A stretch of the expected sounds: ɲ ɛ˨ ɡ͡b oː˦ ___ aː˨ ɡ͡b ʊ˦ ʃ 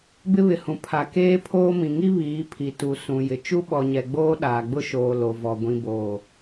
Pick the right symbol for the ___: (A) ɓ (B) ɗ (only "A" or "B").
B